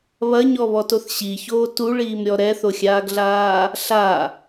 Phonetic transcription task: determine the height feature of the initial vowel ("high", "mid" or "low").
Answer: low